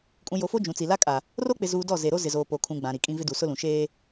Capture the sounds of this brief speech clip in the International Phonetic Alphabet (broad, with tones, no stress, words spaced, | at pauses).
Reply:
kʼũ˨ jo˨fo˦ d͡ʒũ˨t͡si˨ la˦kʼa˨ | ro˦k͡pɪ˨zuː˨ dɔ˦˨ ze˨ɾo˦ zɪ˨zoː˨ po˨kʰũ˨ ɡ͡bã˨ ɾi˨kʼĩ˦vɪ˦ du˨ sʊ˦lũ˨ ʃeː˦